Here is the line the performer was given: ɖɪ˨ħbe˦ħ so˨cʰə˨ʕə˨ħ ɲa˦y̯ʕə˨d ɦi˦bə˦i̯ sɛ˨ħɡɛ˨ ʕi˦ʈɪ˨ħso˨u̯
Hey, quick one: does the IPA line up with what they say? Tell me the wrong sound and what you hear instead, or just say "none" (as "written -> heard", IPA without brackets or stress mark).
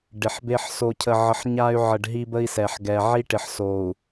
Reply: d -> ɖ